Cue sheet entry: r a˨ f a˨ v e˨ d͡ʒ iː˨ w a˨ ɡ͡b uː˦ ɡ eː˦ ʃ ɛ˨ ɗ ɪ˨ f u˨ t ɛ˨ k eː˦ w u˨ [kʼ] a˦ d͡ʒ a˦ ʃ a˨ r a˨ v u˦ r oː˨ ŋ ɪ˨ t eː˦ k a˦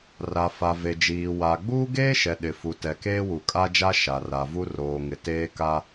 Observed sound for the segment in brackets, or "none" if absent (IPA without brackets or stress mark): kʼ